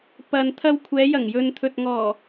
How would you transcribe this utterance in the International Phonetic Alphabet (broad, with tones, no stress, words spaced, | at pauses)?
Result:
pɐ˨nt̪ʰɐ˧w kʷʰɛː˨˧jɐ˨˩ŋjɵ˨nt̪ʰɵ˨t̚ ŋɔː˨˩